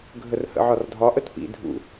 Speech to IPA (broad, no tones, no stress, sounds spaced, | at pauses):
ɡʱ ə r h ə̰ ʕ ɒ r dʱ ɒ ʔ ə t p ḭ dʱ ṵ